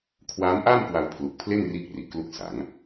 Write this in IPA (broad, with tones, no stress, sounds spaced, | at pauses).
kʰ w aː˦˥ m ʔ aː˥˩ m k w a˧ w pʰ l u˨˩ k̚ pʰ l e˥˩ n r iː˦˥ k̚ r i˨˩ ʔ k l u˦˥ k̚ s a˩˦ ŋ